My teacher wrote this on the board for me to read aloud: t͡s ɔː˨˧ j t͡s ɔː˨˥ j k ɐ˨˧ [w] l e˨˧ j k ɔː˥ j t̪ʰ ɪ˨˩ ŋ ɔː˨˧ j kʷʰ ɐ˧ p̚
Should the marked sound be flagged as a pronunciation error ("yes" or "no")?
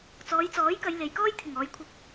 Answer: yes